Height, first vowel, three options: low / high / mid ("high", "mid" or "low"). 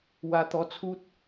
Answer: low